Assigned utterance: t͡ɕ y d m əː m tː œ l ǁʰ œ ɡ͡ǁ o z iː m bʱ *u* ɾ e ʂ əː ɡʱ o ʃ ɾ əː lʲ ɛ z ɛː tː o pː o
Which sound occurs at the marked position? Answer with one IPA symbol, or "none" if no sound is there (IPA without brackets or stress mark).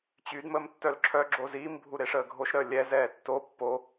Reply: u